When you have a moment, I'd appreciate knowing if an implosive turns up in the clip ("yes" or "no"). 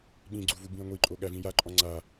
yes